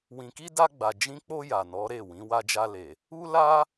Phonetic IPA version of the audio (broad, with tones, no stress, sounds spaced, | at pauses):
w ĩ˨ k i˧ d a˧ ɡ͡b a˨ d͡ʒ ĩ˧ k͡p o˧ j a˨ n ɔ˨˦ ɾ e˦˨ w ĩ˨˦ w a˧ d͡ʒ a˧ l e˨ | u˦ l a˦